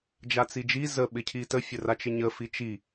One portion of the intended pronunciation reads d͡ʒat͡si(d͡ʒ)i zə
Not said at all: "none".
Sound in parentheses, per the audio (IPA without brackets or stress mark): d͡ʒ